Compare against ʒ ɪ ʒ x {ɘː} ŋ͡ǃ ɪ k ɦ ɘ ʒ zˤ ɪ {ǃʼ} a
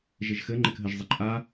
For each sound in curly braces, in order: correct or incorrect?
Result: incorrect, correct

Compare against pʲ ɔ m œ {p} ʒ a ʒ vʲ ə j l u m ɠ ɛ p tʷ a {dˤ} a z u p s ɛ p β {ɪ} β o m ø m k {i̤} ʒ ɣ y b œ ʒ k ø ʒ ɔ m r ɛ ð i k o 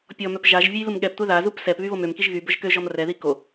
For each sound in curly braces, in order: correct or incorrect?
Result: correct, incorrect, incorrect, incorrect

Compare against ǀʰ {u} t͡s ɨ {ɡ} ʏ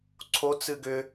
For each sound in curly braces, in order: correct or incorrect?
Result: incorrect, correct

